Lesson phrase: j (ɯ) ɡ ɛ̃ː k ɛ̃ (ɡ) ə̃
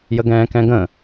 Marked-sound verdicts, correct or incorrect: incorrect: ə, correct

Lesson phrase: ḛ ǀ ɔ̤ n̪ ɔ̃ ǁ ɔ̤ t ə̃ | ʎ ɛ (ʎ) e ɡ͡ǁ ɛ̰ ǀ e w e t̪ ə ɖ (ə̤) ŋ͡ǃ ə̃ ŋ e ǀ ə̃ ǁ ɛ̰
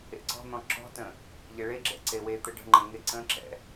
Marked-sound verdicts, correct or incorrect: incorrect: ɭ, correct

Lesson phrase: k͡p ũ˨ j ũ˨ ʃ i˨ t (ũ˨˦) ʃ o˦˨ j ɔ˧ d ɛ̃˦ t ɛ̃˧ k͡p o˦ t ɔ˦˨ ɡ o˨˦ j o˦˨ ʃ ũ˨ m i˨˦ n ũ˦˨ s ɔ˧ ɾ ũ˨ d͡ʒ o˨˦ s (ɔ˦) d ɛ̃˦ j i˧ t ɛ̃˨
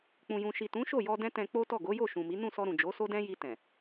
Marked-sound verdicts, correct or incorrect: correct, incorrect: o˦

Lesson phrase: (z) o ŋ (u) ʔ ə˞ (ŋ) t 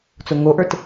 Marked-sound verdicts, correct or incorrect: incorrect: t͡s, incorrect: o, incorrect: none

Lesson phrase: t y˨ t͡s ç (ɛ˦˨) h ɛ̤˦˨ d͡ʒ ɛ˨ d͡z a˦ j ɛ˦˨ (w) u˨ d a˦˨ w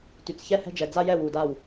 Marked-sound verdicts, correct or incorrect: correct, correct

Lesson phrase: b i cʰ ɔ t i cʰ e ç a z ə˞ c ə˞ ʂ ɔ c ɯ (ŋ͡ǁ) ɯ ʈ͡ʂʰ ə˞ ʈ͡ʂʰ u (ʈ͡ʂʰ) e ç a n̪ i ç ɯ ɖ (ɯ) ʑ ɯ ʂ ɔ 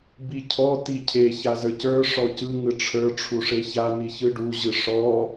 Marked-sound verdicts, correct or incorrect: incorrect: ŋ, incorrect: ʂ, incorrect: u

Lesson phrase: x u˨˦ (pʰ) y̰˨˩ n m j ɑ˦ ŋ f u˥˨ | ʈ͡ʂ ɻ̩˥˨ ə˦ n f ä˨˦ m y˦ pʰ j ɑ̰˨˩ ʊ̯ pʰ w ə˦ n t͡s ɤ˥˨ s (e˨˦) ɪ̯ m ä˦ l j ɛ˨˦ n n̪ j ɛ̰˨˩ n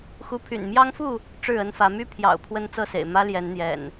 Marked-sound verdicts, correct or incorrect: correct, incorrect: ḛ˨˩

